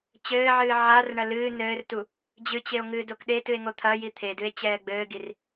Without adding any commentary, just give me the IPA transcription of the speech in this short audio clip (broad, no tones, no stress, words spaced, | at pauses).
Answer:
t͡ɕɘːʕɨː ʕarɳɐ lɨː nɘːrtu | d͡ʑɨt͡ɕeo̯ ŋɨːdokɗetɨe̯ ŋot̪ʰɐji t̪ʰedɨe̯ t͡ɕɛːɡ͡bɘːɡir